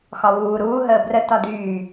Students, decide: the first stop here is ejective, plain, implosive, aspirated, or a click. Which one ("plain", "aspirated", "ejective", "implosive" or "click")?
plain